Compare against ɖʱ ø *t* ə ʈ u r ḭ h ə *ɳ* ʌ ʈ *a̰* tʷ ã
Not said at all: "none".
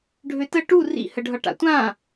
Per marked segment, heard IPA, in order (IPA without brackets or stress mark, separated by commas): t, ɖʱ, a̰